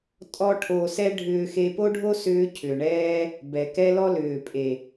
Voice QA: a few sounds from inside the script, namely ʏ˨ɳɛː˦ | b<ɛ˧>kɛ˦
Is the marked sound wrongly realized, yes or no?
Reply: yes